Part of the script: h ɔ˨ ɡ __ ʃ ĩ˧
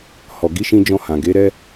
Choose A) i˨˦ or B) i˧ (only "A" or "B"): A